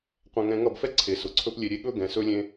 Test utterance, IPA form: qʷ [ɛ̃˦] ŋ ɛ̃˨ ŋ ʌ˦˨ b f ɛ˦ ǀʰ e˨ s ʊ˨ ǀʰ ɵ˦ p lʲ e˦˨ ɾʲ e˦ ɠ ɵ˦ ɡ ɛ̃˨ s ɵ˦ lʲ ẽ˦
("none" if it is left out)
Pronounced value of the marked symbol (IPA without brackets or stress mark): ɛ̃˨